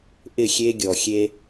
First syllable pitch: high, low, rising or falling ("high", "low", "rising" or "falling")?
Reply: falling